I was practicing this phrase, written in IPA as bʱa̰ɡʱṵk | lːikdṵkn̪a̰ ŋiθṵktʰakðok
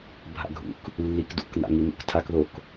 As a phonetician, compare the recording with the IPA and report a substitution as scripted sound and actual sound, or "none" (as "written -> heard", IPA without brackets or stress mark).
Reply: θ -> n̪